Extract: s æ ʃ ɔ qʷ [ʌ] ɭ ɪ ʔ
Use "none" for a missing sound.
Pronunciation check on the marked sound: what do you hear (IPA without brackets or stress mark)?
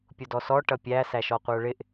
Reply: ə˞